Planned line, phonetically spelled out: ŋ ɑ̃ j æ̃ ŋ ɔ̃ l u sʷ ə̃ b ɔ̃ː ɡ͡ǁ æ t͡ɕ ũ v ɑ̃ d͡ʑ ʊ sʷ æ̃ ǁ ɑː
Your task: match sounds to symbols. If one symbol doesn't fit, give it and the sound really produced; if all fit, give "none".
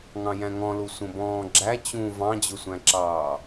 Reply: none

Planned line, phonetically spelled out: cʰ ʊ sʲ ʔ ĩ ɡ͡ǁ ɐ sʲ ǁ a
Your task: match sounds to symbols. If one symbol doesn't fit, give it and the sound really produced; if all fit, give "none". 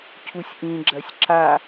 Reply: ʊ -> u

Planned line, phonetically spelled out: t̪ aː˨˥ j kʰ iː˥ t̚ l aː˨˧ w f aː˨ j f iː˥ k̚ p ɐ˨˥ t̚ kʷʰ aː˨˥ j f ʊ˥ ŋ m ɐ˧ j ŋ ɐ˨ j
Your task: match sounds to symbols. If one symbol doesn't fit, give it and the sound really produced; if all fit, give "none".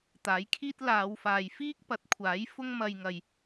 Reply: none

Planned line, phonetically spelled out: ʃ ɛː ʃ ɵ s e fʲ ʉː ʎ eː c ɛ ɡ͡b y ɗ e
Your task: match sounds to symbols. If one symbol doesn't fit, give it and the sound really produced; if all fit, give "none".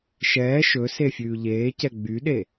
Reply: none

